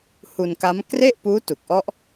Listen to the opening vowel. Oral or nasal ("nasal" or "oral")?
oral